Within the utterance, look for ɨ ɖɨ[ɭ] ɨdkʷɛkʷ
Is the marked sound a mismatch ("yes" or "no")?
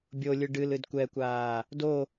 yes